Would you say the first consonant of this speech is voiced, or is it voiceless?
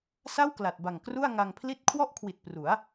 voiceless